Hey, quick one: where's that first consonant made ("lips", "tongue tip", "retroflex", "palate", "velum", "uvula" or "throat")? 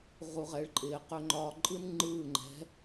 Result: uvula